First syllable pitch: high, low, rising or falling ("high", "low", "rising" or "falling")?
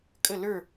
falling